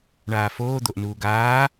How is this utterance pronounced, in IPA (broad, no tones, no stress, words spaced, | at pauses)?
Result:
ɳaːfoː d̪oʔnuːɡaː